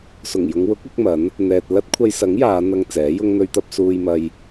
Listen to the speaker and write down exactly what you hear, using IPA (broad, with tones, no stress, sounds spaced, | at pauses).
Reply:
s ʊ˨˩ ŋ j ʊ˨˧ ŋ w ʊ˨˥ k̚ ɪ˨˥ k̚ m ɐ˨˥ n | n̪ ɛː˨ t̚ l ɐ˥ t̚ kʷʰ ɐ˧ j s ɐ˨˥ ŋ j aː˨˧ n̪ ɐ˧ ŋ t͡s ɛː˨˥ j ʊ˥ ŋ n̪ ɵ˥ ɥ t̪ ɐ˥ p̚ s uː˧ j m ɐ˧ j